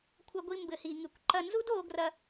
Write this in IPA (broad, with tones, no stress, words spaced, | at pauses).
kʷʰɐ˧ɡʷi˧ mbɘ˩hi˩ŋɨ˩kʷǃɐ˧ nzu˥doː˧ɡrɐ˧